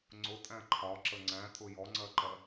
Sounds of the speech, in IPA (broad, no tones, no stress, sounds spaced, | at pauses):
ŋ͡ǀ ʊ tʼ æ̃ ǃʰ ɒ ǁ ə ŋ͡ǀ æ̃ tʼ ʊ j ɔ ŋ͡ǀ ɜ ǃ ɜ